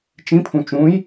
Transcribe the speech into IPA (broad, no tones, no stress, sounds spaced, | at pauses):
t͡ʃ ĩ pʰ ũ t͡ʃ ũ j